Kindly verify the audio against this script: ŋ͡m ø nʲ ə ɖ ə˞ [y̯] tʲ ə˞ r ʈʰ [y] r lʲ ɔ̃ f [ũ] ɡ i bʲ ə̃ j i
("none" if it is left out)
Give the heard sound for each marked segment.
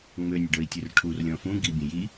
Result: i̯, u, ũ

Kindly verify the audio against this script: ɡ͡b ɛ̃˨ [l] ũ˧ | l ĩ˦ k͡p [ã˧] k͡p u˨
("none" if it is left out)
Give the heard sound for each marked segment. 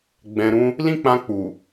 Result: ɾ, ã˧

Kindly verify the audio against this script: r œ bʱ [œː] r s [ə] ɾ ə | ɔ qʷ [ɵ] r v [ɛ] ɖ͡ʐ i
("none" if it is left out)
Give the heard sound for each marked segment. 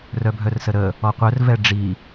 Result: œ, ə, œ, ɛ

